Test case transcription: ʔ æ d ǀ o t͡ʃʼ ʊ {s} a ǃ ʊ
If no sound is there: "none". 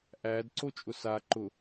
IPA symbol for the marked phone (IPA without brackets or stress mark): s